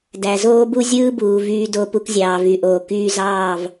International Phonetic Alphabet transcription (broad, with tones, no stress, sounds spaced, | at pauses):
d æ˨ z oː˦ b u˦ zʲ ɯː˦ b uː˨ v yː˧ d o˧ p u˧ k zʲ ɑː˨ v y˨ ʔ oː˨ k yː˧ z ɑː˦˨ v